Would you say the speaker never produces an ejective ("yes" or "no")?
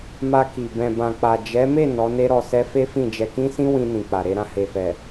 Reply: yes